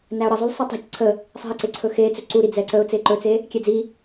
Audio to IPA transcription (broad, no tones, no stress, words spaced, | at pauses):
næʊ̯ɾəzˤul sˤɛtˤɛ̤c ǀʰə | sˤɛ̤ə̯ǀe ǀʰɵxet͡sɵ ǀuɾi d͡zɛǀəʊ̯ t͡seǃɵt͡se | kʲɛd͡zi